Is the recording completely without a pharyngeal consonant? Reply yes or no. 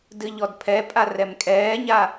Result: yes